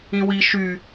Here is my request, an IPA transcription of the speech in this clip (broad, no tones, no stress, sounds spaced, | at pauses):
ĩ w i ʃ y